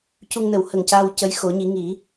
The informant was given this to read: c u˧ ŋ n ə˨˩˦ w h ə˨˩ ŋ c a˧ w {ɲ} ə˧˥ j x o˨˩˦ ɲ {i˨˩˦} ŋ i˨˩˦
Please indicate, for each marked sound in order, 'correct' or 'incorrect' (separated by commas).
incorrect, correct